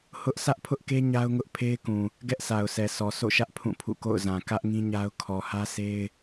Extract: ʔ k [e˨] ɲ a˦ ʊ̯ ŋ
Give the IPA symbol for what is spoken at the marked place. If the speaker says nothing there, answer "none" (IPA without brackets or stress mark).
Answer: e˦